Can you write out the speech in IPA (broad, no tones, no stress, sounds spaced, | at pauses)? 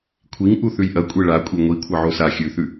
kʷʰ i ŋ ʔ u θ ʉ j ʔ ɐ kʷʼ e ɭ a kʷʼ e ŋʷ i kʷʰ ɐ ʕ o s a xʲ ʉ θ ʉ